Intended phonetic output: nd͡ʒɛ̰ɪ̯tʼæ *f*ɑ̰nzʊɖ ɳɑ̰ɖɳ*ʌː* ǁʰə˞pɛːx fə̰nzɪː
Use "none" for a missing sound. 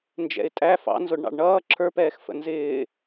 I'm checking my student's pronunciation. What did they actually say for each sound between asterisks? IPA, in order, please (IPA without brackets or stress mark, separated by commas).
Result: f, ʌː